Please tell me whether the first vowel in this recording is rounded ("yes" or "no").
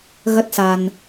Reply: no